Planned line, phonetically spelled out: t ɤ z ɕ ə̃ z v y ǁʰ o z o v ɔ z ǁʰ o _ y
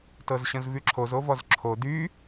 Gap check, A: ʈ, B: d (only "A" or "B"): B